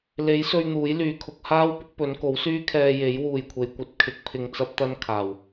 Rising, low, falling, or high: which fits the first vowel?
rising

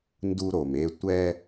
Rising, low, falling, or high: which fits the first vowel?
high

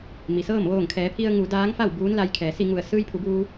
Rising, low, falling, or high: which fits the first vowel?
low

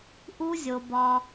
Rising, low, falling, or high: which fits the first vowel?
high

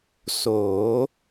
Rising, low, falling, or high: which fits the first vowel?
rising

